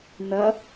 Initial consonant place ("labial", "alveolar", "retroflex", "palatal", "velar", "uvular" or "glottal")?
alveolar